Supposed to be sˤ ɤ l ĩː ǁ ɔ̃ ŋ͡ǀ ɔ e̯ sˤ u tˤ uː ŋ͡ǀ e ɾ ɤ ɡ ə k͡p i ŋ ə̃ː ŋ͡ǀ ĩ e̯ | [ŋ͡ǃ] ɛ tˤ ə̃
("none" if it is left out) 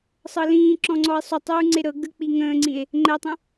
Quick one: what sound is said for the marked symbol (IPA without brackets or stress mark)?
ŋ͡ǃ